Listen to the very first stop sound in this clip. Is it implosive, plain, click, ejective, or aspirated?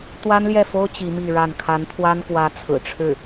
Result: plain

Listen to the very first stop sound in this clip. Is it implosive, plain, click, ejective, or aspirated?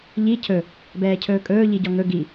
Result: aspirated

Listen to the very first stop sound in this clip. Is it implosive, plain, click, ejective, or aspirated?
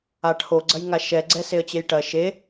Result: aspirated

